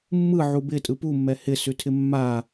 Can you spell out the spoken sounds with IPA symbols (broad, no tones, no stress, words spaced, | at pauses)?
mːɯ ʕubɪ tʼɯpumːɛ hɪsʉtʰɪ mːa